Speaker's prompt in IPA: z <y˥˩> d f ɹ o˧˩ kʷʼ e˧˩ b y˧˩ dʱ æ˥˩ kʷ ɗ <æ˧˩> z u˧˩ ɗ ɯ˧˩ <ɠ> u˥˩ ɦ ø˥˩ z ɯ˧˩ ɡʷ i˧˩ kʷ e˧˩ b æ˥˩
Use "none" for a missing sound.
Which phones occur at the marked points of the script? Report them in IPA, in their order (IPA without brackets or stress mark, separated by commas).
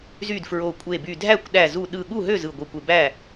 y˥˩, æ˧˩, ɠ